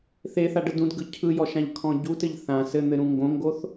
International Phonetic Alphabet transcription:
θeθaɖə dũdɡɯ cʰɯjɔʃãʎkʰɔ̃ ɟutɘʎ θã sɘn̪ɘɾũ ŋɡõŋɡoθ

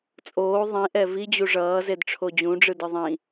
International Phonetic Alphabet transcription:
t͡sʼoː ðˤĩʔɛ vid͡ʑu ʐʌːzedʈ͡ʂʰo d͡ʑũɖ͡ʐɯdɯ ðˤĩ

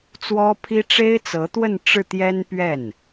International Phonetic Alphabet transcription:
t͡swɔ˥pʰi˥ ʈ͡ʂe˥ɪ̯t͡sɤ˧˥t̪wə˥˧n ʈ͡ʂɻ̩˥˩ t̪jɛ˥npɥɛ˥˩n

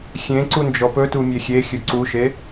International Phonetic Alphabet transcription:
xʲẽǀu nd͡ʒɔpɵtu mʲexʲexʲɵ ǀuʃe

